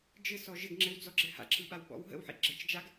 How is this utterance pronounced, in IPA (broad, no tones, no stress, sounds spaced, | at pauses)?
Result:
d͡ʒ ɘ s ɔ ʒ ɘ ɡ ŋ͡ǁ ɘ w d͡z ɔ ɡ͡ǁ ɘ h a̰ ǁ ɯ ɓ a w ɓ ɔ̰ w ɦ ə̰ w ħ ḭ ɡ͡ǁ ɘ t͡ʃ d͡ʒ a ɡ